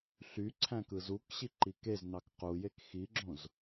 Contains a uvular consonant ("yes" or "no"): yes